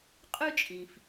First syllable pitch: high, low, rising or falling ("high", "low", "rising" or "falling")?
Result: high